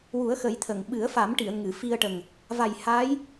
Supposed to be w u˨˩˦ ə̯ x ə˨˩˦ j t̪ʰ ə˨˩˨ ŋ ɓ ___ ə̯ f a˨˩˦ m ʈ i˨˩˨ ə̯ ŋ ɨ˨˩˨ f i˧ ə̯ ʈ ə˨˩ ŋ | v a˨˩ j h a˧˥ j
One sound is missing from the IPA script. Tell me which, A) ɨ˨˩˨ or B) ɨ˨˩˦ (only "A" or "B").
B